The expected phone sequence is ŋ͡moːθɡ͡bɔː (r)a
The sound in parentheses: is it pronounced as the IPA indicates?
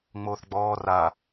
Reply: yes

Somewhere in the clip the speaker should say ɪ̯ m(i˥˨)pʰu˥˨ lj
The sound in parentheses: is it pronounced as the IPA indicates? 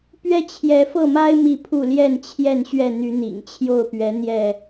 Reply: yes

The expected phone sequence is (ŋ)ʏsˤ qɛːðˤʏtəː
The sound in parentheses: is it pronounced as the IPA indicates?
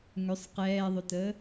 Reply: yes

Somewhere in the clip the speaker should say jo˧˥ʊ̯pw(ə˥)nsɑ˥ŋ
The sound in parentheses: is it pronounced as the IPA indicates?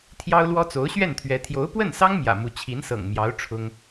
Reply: no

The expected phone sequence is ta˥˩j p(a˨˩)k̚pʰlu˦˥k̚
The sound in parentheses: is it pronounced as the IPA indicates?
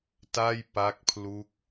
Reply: no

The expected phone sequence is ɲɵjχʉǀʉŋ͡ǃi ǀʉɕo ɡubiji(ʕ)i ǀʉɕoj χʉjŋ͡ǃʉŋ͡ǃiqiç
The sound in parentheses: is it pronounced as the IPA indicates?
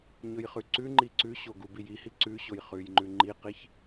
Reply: no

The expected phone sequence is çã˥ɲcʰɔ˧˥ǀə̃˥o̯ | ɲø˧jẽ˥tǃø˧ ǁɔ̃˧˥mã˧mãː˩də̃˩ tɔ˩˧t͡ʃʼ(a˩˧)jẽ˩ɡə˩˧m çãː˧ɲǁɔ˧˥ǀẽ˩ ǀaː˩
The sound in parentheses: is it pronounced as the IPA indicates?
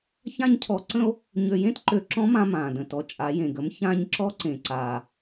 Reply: yes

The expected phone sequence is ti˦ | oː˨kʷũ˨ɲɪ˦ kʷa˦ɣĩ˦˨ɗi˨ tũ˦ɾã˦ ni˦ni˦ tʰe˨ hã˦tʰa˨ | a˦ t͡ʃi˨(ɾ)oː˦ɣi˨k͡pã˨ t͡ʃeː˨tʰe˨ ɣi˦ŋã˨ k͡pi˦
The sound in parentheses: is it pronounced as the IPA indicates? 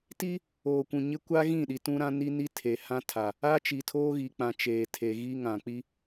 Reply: no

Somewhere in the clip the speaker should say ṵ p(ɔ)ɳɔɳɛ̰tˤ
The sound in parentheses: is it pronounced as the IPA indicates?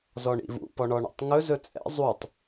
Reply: yes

